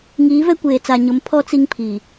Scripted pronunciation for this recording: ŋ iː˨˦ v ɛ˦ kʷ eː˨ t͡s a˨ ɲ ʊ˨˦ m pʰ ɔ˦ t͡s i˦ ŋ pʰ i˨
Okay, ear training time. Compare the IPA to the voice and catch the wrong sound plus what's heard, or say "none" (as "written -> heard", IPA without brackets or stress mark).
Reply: none